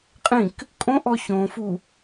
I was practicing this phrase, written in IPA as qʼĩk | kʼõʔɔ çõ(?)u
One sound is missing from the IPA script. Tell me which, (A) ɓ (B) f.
B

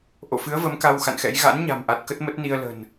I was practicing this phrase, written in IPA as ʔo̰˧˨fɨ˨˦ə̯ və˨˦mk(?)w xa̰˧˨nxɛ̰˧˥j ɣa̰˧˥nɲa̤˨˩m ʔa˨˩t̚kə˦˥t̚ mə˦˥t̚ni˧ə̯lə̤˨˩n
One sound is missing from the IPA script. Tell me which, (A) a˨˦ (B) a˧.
B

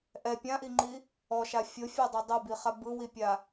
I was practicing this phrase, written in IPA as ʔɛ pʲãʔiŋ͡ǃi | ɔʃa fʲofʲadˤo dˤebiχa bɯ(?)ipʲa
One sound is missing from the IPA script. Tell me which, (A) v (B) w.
B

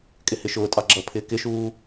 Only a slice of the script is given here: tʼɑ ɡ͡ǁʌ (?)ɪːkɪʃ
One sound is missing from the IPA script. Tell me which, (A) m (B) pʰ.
B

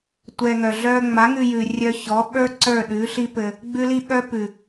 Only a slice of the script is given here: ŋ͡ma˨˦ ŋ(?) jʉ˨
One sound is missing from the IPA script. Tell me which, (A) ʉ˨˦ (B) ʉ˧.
B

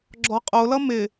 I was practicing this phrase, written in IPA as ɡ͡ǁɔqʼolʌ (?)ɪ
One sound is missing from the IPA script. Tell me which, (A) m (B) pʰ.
A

